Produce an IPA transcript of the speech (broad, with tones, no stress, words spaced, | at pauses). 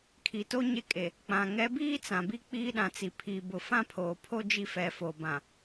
kʰi˨to˦ ɲe˦kʼe˨ | k͡pã˨ ŋɛ˨˦biː˦ t͡sã˨bi˦ k͡piː˦ɗã˨t͡si˨ pʰi˨ bʊ˨fã˦pʰoː˨pʰo˦ d͡ʒi˦fɛ˨˦fo˨bã˨